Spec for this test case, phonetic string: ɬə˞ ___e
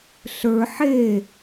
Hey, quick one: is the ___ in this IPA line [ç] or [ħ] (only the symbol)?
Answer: ħ